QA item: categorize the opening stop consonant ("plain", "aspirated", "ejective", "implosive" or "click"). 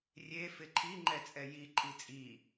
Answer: click